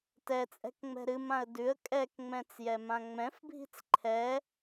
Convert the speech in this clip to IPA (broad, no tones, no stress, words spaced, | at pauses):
tɛt͡sʼɛ̤kŋ͡mɛ̤ ɾɨmãə̯ dʉə̯ kʼɛkŋ͡mɛ̃t͡sjɛmã ŋ͡mɛ̃fbʱi̤t͡s ǃʰɛ